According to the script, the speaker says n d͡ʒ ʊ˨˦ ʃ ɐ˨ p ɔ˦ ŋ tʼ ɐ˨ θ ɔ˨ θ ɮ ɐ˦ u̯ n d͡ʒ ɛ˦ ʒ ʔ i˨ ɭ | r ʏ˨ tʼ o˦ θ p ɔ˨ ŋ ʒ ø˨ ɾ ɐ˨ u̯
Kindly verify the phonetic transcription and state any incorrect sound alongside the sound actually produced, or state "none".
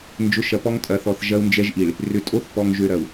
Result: ɮ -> ʒ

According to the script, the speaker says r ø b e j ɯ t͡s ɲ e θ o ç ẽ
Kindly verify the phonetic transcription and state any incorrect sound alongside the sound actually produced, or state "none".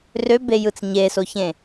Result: θ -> s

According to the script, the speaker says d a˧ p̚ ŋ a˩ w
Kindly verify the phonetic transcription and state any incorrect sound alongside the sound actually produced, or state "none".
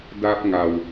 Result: none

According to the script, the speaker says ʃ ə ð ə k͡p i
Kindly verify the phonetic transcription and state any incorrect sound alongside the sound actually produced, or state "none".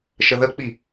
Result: none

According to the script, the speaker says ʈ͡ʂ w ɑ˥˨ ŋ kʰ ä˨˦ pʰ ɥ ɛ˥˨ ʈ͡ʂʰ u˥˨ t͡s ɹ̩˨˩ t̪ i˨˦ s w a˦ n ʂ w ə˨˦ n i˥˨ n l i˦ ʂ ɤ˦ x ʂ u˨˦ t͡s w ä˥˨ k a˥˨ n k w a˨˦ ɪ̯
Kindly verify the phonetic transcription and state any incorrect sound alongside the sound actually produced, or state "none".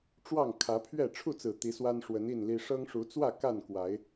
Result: x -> ŋ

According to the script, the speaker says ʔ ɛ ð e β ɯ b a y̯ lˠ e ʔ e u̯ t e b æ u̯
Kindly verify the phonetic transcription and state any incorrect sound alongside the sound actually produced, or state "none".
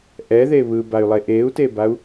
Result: æ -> a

